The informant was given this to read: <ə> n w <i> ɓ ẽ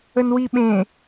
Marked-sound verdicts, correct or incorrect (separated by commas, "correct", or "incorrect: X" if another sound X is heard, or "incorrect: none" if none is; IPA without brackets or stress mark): correct, correct